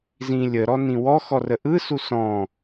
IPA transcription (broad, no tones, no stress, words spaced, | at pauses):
zĩlʲəɾɔ nĩwɔxɔ rəʔɯsu sɔ̃